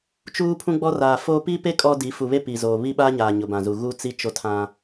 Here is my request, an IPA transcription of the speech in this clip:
t͡ʃuː˦pʰũ˦ɡ͡bɔ˦ raː˨foː˦ pi˦pe˦ kʼɔ˦di˨˦ fu˨βe˦ pi˨zoː˨ βi˦ɓa˦ɲaː˨ ɲʊ˨bã˨zu˨ ɣu˦t͡si˦ t͡ʃo˦tʰã˦

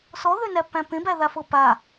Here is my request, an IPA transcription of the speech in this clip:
sɔðønæpːæ̃ pẽbæðafɤ pa

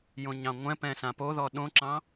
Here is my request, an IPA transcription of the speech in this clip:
jõɲɑ̃ŋʷɛ̃pɛ̃ sãpoðɔ ɗõǁɑ̃

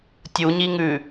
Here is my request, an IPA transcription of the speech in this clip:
tʲuɲiŋʉ

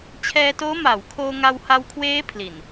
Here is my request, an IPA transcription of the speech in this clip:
t͡ɕʰɛː˧toː˦˥ maː˩˦wkʰoː˧ ŋa˧wha˧wkʰweː˦˥ pʰli˨˩n

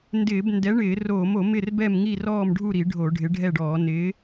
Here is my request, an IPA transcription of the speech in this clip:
ndɪː˧˩˧b ndɛ˨˥ ɳɪː˧˩˧roː˧˩˧mo˧˩˧ mɪ˥˨rbɛ˥˨mŋi˥˨ rɔː˥˨mɖʱu˥˨ɾi˧˩˧ ɖʱo˧˩˧ɖʱɪ˨˥ɖʱɛ˥˨ɖɔː˧˩˧ nɪː˨˥

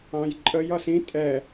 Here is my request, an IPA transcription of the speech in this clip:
ɑ̃jǃʼəj ʌsĩ tʼɛ

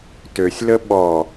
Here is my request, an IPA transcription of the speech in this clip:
tøsʲlə ɓɔ

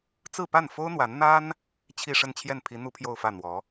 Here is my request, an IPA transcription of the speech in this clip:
t͡sɹ̩˥˧pa˥˩nfo˥ʊ̯ n̪wa˧˥n n̪a˥n | t͡ɕʰi˥˧ʂə˥˧nt͡ɕʰjɛ˥˩n pʰi˧˥ n̪u˥pʰjo˥˧ʊ̯fä˥˩ n̪wɔ˧˥

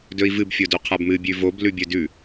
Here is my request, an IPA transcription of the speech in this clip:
dɵi̯vɨb fʲodoqʰabmɨ bʲʉvob lʉbʲɵdʉ

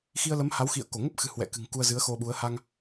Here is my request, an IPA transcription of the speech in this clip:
xi˧ə̯lə˨˦mha˨˦wxḭ˧˨ə̯ ko˧˩ŋə˦˥p̚xɨ̤˨˩ hwɛ̰˧˨kɨ̤˨˩ŋ ku˧ə̯zɨ˨˦ə̯xo˧ɓu˨˦ə̯ ha˧ŋ

